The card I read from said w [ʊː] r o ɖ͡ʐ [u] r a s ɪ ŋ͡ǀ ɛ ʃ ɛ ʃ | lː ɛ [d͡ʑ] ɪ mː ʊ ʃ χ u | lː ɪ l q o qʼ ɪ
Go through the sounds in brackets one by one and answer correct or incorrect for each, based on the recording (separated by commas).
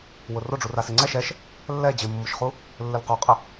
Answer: incorrect, correct, correct